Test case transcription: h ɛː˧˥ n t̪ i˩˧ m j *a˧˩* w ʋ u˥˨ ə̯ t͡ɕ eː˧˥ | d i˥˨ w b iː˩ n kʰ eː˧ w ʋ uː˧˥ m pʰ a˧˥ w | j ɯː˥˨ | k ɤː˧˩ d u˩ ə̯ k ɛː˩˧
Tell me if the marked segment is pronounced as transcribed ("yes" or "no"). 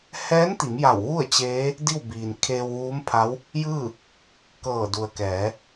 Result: yes